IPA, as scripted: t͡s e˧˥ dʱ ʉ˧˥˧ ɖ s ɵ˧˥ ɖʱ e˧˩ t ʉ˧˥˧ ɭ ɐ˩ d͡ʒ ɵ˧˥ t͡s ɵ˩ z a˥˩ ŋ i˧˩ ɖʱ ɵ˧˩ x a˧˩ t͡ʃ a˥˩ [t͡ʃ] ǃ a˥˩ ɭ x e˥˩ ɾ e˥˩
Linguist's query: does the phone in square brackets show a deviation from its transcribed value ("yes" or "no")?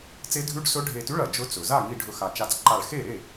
yes